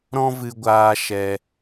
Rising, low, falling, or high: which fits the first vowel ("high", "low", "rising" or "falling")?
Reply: high